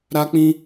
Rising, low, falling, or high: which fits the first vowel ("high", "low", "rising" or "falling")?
high